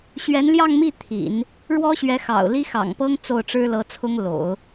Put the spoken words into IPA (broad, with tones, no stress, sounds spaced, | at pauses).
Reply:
ɕ ɥ ɛ˧˥ n l j ɑ˥˧ ŋ m i˥˩ t̪ʰ ḭ˨˩˦ n | ɻ w ɔ˥ ɕ ɥ ɛ˧˥ x ɑ̰˨˩ ʊ̯ l i˥ x ɑ̰˨˩ ŋ p ɤ˥ ŋ t͡s o˥˩ ʊ̯ ʈ͡ʂ ɻ̩˥ l ɤ˧˥ t͡sʰ ʊ˥ ŋ l o̰˨˩˦ ʊ̯